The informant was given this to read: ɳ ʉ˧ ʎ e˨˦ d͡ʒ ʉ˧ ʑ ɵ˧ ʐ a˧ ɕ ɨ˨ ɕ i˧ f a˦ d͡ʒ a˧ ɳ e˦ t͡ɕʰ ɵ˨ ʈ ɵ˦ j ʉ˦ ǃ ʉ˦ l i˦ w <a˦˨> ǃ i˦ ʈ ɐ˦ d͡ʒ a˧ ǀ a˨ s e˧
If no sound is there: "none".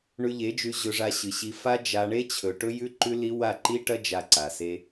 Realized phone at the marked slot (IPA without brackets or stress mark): a˦˨